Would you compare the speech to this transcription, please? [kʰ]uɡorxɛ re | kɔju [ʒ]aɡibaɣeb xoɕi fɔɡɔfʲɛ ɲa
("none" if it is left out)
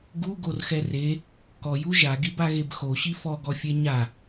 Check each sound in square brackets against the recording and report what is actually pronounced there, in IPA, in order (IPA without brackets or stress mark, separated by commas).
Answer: ɡ, ʒ